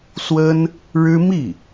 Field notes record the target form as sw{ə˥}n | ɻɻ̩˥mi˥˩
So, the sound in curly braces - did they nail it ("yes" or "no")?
yes